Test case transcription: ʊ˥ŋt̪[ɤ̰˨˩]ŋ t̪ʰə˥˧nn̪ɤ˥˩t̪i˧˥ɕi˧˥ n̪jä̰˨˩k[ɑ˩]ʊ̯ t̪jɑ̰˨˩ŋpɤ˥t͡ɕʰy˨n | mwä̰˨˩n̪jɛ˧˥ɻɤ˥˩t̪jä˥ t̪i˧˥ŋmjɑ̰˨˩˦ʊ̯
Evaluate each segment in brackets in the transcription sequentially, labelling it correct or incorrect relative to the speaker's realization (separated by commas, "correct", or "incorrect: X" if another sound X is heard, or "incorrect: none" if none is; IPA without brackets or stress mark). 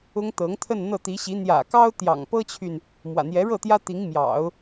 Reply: incorrect: ɤ˧˥, incorrect: ɑ˥